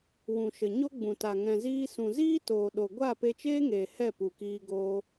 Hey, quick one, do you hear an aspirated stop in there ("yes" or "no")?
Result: no